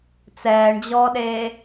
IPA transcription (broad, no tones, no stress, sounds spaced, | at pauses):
t͡s ɛː ɳ d͡ʑ ɔː ɗ eː